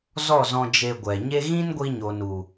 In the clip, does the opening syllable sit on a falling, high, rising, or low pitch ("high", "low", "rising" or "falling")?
falling